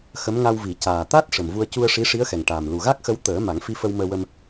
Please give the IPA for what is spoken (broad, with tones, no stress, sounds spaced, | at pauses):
x ə˧˥ m ŋ a˧ w v i˨˩˦ c aː˨˩ t̪ a˦˥ t̚ ʂ ə˨˩ m v u˧ ə̯ c u˧ ə̯ ʂ i˧˥ ʂ i˧˥ ə̯ x ɛ˨˩ ŋ ʈ aː˨˩ m l u˨˩ ɣ a˦˥ k̚ x ə˧˥ w t̪ əː˨˩˦ m a˨˩˦ ŋ f i˧ f ə˧ w m əː˧ w ə˧ m